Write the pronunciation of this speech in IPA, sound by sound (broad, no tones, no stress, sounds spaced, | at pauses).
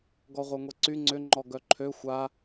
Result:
ɡ ɔ ʁʷ œ ŋʷ ɛ ǀ y ŋ͡ǀ ʏ ŋ͡ǃ ɔ ɡ œ ǃʰ ø xʷ a